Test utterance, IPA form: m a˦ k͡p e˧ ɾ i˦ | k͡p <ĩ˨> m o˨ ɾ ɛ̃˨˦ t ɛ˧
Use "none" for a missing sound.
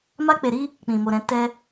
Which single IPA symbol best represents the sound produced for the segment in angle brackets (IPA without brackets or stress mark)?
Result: ĩ˨